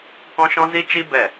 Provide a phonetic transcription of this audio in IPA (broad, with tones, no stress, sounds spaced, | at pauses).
k ɔ̃˦ ʃ ɔ̃˦ z i˦ t͡ʃ i˦ b ɛ˦˨